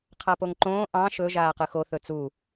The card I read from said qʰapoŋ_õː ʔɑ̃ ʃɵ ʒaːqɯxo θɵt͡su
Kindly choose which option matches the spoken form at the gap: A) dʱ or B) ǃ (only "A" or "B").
B